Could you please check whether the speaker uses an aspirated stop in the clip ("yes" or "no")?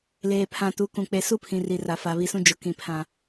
yes